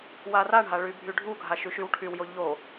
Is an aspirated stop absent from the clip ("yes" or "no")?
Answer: no